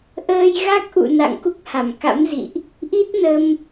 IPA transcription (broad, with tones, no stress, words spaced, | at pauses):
ʔəː˧jɣa˦˥k̚ʔṵ˧˨ na̰˧˨ŋku˦˥k̚ha˧˩mka̰˧˥m zḭ˧˨ʔ | ʔi˦˥t̚nə˧m